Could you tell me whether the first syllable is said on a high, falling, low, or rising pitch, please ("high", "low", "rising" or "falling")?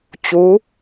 rising